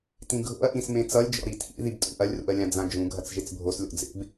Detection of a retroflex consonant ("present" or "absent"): absent